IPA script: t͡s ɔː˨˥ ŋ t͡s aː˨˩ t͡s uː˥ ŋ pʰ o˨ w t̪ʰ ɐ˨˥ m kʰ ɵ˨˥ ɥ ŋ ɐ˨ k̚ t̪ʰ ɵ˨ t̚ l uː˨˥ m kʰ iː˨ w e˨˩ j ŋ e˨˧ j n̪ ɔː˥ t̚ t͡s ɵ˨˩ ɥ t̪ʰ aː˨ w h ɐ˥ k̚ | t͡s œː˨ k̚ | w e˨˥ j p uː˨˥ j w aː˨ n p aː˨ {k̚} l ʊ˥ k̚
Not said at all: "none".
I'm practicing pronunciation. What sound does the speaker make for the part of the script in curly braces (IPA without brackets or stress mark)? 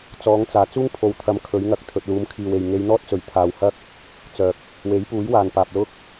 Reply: p̚